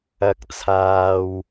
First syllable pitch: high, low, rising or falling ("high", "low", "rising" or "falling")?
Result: rising